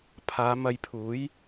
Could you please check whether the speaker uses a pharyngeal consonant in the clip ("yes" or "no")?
no